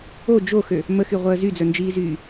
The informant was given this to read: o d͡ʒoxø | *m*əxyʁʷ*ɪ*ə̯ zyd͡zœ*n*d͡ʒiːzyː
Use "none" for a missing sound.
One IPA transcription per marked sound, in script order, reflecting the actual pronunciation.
m, ɛ, n

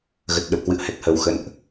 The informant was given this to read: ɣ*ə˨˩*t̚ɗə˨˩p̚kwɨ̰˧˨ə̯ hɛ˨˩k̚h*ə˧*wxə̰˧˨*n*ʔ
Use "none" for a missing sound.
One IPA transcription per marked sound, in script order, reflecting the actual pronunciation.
ə˨˩, ə˨˩, n

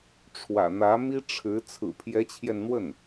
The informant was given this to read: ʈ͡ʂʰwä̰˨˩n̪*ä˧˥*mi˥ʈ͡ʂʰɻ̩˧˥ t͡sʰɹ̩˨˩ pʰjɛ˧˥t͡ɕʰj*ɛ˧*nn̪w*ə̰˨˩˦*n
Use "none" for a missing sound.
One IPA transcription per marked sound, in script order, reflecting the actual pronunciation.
ä˧˥, ɛ˧, ə˥˩

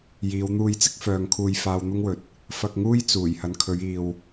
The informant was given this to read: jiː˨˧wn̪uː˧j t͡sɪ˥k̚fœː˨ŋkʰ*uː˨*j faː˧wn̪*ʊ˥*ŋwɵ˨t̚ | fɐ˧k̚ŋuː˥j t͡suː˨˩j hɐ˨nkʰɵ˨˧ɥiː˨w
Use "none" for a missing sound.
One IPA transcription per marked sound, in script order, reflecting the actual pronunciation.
uː˨, ʊ˥

